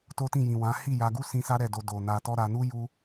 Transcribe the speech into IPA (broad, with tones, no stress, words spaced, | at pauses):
to˦tĩ˦˨jĩ˨wã˨˦ hi˦˨ja˧ɡu˦ sĩ˦ sa˦ɾɛ˦˨do˧ do˨ na˧tɔ˦ ɾa˧nu˦ ju˦